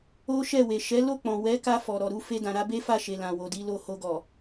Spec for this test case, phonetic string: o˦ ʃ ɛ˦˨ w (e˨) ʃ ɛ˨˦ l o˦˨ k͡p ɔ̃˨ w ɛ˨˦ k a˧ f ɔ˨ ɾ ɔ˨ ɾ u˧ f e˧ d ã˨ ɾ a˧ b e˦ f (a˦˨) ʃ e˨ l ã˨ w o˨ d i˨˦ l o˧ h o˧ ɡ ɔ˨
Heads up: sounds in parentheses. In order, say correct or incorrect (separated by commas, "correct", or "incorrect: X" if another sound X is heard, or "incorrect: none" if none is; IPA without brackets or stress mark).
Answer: correct, correct